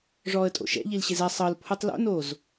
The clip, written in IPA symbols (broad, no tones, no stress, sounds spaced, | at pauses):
ʐ ɔː ə̯ tʼ o̰ ʃ ɛ̰ ʎ i l ɕ e z ɛ sˤ ɤ l pʰ u tˤ l o̰ n oː z